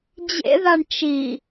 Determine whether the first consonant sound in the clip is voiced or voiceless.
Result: voiced